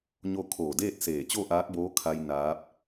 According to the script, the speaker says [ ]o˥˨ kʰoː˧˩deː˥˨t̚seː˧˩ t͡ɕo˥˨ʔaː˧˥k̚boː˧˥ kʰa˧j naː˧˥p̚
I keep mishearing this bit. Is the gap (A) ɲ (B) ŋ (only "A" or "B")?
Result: A